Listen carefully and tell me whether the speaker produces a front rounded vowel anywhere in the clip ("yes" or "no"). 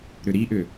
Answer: yes